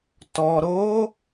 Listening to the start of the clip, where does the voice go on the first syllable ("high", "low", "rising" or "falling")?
low